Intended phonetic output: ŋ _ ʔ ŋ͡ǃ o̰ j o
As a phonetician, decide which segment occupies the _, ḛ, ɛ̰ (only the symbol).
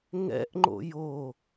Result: ɛ̰